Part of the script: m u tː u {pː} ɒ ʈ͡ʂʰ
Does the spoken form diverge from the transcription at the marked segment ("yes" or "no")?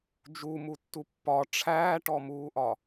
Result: no